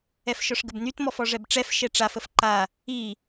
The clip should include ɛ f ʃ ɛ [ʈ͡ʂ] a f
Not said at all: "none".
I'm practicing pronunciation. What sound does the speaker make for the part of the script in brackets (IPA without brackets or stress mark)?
ʈ͡ʂ